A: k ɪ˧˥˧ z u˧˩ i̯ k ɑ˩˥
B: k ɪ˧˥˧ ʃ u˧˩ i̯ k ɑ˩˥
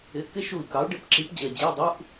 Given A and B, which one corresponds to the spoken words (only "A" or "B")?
B